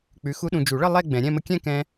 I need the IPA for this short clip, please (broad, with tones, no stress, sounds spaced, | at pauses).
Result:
k͡p ʉ˨˥ x u˦˥ ɗ ũ˧ d͡ʒ u˨˩˦ ɭ ə˥˧ lˠ ɛ˥˧ ɡ͡b ɛ̃˨˩˦ ɾʲ ɛ̃˥˧ m ə˦˥ kʲ ɛ̃˥˧ k ɛ̃˧